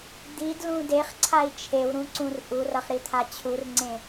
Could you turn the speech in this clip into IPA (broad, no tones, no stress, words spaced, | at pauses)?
d̪idlũ deχǀʰai̯ t͡ʃʰewɾũǀũr ʔurʌχɾit̪ʰa t͡ɕʰurŋ͡ǀẽ